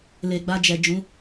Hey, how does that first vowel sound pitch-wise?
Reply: low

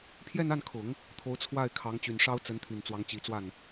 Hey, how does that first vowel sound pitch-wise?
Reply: falling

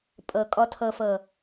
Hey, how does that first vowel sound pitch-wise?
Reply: low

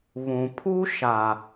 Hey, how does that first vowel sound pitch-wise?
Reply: low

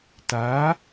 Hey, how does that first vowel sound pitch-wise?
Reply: rising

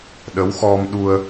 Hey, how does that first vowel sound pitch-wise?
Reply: rising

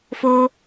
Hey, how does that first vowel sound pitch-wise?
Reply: high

